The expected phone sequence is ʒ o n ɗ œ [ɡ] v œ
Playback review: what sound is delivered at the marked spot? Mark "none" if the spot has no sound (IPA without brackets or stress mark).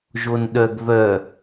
ɡ